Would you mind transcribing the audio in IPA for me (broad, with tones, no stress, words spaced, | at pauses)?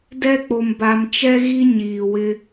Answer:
dɛ˦k͡po˨m ba˨mt͡ʃɛ˦ɣi˦ ɲiː˨wɪ˦